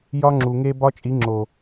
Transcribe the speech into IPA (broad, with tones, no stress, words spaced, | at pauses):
jɒ˦ŋ͡ǁu˨ŋe˦ bɒ˦t͡ʃʼi˨˦ŋ͡ǁo˨